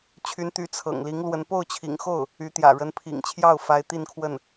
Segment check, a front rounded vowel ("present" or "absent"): present